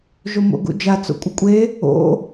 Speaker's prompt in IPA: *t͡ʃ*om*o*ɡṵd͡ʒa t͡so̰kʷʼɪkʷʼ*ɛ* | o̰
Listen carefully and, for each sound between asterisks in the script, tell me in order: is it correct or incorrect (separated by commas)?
incorrect, incorrect, incorrect